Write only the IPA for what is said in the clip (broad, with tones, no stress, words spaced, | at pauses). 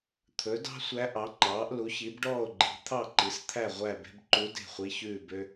t̪ʰɵ˩˥dɑ̤˥ sʷæ˧˥ʔɑ˩˥ŋ͡ǃɑː˩˥ʔ lu˩˥çi˩˥bɖɔː˥˨o̯ɡ͡ǃi̤˩˥ t̪ʰɑ˥˨ǃi˩˥st̪ʰæ˥˨ ʁʷæ˥˨be̤˥b ǃu˧˥ de̤˥˨ χʷi˧˥çʉː˥˨bø˥